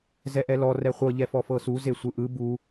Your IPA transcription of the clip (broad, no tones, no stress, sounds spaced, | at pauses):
z ɛ ʔ ɛ l ɔ r ɛ χʷ ɤ ʎ ɛ f ɔ f ɤ s u z e sʷ ɯ ʔ ɯ b u